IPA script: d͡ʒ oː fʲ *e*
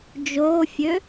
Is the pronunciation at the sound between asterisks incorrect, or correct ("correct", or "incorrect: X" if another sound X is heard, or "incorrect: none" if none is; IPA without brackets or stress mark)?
incorrect: ø